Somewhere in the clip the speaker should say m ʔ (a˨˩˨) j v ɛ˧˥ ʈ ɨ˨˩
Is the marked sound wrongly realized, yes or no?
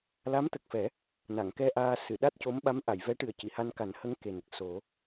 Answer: no